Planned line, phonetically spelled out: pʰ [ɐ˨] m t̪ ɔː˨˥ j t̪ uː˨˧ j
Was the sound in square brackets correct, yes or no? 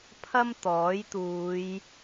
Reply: no